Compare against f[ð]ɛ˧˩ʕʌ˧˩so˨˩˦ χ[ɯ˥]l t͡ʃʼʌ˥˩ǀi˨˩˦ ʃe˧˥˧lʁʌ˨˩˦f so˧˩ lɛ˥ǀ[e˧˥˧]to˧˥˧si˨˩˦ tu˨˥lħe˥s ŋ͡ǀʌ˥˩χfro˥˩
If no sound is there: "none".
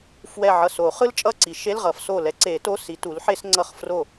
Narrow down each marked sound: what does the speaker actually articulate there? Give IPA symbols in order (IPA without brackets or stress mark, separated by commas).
w, ɯ˥, e˨˩˦